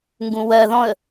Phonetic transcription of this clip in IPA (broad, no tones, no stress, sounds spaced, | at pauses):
ŋ ɡ ũ w ɜ ð ɔ̃ ə̯